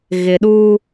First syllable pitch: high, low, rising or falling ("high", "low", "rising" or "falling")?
low